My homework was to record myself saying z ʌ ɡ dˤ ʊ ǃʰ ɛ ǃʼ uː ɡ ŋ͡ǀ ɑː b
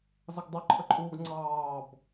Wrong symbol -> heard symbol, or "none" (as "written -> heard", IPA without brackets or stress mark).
ɛ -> ə